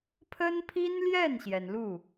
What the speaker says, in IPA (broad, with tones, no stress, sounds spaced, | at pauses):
pʰ ə˥ n pʰ i˥ n l j ɛ˥˩ n ɕ j ɛ˩ n l u˥˩